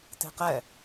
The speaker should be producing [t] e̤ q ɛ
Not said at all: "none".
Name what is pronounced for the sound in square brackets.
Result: t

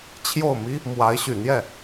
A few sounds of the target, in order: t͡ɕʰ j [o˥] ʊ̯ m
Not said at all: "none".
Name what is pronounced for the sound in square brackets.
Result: o˥˩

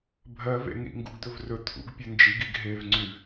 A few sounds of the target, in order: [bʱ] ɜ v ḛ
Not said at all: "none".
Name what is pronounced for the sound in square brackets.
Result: bʱ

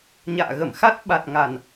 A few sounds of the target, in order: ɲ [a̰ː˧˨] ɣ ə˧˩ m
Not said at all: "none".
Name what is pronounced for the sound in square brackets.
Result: a̰ː˧˨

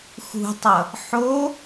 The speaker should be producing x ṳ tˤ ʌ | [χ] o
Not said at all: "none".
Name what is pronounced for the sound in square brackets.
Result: ħ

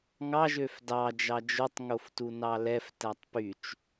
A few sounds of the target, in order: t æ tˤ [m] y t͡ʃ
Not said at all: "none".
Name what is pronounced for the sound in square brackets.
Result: p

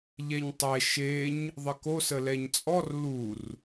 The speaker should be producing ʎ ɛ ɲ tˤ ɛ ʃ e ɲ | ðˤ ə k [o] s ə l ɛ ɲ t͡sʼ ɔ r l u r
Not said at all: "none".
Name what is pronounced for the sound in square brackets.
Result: o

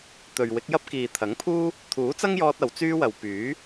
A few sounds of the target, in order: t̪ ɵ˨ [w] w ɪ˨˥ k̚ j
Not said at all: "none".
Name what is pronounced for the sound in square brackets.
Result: ɥ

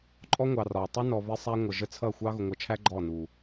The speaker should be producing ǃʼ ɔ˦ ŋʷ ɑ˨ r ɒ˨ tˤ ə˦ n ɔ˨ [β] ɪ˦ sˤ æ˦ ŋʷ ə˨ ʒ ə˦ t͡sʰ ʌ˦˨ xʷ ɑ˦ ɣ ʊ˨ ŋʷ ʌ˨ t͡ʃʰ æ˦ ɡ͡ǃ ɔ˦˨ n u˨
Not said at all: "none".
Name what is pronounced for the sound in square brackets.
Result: β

